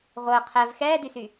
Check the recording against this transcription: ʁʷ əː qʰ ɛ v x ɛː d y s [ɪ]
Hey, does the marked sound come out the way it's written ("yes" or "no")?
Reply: no